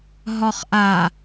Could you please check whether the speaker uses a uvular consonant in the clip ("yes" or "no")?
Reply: yes